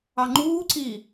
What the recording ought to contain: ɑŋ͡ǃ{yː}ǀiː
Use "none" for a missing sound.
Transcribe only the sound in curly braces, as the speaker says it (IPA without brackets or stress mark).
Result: uː